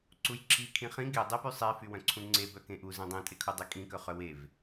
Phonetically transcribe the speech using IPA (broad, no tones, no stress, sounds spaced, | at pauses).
ǀ u j ǁ i kʰ ĩ χ ĩ ɡ e dˤ e p y sˤ e f y w œ̃ ǀʰ ũ ŋ͡ǀ e b œ k ẽ ʔ u z ẽ dˤ ẽ tʼ e kʰ u dˤ i kʼ ĩ k œ χ œ w e v